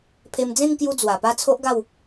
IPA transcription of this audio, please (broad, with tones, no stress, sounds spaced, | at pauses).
pʰ e˧ m d͡z ẽ˥˧ ŋ k j u˧ d͡z w a˨˩ p a˥˧ t͡sʰ o˦ ʔ ɡ a˥˧ w